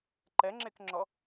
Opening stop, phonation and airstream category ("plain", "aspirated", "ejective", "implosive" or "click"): click